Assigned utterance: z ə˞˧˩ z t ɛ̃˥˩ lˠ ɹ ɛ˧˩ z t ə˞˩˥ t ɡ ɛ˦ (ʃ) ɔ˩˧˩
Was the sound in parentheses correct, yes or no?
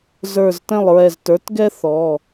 no